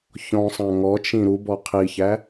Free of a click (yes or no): yes